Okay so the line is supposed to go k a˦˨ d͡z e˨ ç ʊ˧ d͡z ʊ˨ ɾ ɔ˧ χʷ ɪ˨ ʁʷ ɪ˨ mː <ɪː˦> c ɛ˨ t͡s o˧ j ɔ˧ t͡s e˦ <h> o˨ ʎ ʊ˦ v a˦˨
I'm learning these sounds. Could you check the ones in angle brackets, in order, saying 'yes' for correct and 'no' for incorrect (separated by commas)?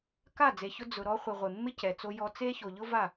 no, no